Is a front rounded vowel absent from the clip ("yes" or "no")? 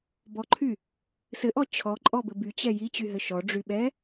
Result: no